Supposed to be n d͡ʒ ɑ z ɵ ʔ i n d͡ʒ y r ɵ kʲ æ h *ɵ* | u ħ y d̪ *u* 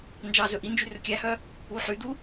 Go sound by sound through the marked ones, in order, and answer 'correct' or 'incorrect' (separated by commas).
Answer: incorrect, correct